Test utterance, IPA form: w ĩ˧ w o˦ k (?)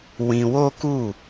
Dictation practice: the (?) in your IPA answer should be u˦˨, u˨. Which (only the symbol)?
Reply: u˦˨